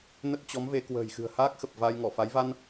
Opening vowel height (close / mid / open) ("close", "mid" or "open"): mid